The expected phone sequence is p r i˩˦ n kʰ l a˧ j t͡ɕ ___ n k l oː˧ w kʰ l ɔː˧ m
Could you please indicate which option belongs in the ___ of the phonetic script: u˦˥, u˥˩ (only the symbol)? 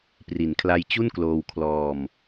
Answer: u˥˩